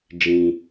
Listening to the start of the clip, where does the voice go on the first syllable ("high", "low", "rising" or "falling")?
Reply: low